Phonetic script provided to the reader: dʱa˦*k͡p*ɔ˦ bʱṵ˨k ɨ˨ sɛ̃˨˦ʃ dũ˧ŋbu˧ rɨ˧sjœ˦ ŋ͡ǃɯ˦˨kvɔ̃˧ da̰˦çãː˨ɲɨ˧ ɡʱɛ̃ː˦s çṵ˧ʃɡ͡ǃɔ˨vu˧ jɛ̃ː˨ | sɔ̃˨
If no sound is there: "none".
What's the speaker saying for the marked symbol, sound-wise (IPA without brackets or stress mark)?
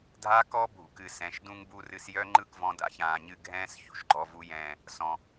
k